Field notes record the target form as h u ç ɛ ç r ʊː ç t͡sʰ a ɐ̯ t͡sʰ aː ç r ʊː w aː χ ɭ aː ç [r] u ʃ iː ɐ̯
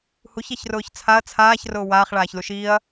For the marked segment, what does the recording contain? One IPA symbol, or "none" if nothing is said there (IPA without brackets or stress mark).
l